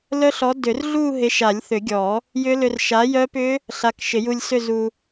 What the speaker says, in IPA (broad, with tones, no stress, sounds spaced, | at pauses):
l œ˦˥ ɬ ɔ˨˥ d ʏ˨˩˦ r ɮ u˥˧ ɦ ɪ˨˥ ʃ a˨˩˦ lʲ θ ʏ˨˩˦ ɡʲ ɔ˨˩˦ | j ʏ˦˥ l ʏ˧ r ʃ a˨˥ j œ˦˥ p ʏ˦˥ | ɬ a˨˥ k ʃ ɪ˨˩˦ j u˧ lʲ s ʏ˥˧ z u˧